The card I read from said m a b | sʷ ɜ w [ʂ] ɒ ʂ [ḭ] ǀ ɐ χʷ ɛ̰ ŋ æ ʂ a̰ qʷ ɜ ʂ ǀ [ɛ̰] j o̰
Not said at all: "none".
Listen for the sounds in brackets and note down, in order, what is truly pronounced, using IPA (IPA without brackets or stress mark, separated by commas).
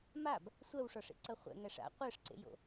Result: ʂ, ḛ, ḛ